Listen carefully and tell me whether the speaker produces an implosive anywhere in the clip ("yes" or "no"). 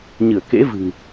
no